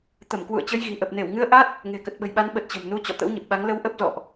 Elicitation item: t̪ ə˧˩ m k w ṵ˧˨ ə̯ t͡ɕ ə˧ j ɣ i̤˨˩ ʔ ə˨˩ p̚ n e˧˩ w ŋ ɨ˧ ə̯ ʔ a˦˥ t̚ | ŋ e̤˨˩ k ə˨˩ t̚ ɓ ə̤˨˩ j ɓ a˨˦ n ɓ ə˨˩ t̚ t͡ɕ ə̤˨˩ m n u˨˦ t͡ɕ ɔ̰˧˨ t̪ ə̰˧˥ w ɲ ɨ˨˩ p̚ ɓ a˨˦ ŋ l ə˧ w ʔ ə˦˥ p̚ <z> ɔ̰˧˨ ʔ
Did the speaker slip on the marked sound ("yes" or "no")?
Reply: no